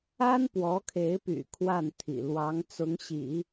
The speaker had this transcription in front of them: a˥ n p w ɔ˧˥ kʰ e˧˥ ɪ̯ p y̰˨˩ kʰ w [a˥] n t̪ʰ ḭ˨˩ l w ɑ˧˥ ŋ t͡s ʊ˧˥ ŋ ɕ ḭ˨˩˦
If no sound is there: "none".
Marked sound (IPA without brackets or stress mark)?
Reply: a˥˩